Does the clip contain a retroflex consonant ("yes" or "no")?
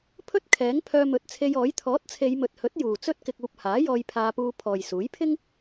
no